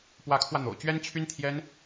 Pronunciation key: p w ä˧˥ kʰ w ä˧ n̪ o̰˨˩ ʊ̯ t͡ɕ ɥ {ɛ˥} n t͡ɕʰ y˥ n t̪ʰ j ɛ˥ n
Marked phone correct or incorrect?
correct